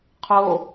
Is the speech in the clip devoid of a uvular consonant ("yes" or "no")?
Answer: no